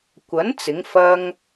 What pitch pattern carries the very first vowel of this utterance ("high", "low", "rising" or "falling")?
rising